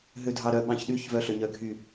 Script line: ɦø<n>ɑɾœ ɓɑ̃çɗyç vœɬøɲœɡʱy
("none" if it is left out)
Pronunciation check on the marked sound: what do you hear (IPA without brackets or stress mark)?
dʱ